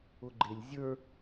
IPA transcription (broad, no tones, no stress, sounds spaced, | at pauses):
ʊ ɡ͡ǃ ɪ lʲ zʲ ə˞